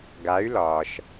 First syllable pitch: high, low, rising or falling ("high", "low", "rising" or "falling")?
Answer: rising